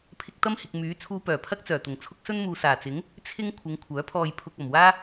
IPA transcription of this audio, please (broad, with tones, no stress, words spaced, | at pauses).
pʰɪ˧k̚t̪ɐ˥mhɪ˨k̚ myː˨˥ t͡sʰuː˧pœː˨˩pʰɐ˥k̚t͡sœː˨˩ t̪ʊ˨˩ŋt͡sʰʊ˥k̚ sɵ˥nmuː˨ saː˨˩t͡sɪ˨˥ŋ | t͡sʰɪ˥ŋ kʷʰɪ˨˧ŋ kʷʰœː˨˥pʰɔː˧jpʰʊ˧k̚ ɐ˨˩mwaː˥